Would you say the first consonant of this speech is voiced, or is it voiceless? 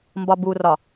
voiced